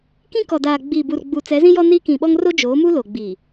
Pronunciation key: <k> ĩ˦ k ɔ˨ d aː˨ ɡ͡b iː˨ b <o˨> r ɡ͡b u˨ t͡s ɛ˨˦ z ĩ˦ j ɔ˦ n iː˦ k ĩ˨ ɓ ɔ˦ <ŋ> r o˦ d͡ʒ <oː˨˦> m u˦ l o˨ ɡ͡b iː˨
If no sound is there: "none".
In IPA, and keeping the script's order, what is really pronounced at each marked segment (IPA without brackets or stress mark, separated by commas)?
k, u˨, ŋ, oː˨˦